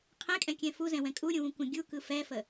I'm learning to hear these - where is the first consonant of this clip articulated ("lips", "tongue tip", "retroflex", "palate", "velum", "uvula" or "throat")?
uvula